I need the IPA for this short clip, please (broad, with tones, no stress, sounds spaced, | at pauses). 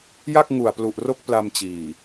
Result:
j a˥˩ k̚ ŋ u˨˩ a̯ p l u˨˩ ʔ r o˦˥ k̚ p l a˧ m t͡ɕ iː˨˩